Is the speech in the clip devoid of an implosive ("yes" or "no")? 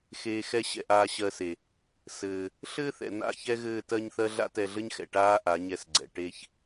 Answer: yes